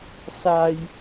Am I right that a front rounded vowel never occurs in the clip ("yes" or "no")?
yes